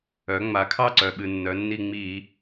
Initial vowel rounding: rounded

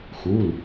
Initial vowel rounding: rounded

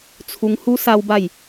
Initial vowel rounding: rounded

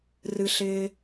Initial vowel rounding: unrounded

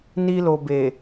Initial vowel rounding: unrounded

